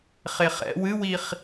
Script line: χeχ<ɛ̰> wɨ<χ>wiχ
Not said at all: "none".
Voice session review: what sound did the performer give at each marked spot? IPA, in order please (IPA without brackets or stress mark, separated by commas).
ɛ̰, none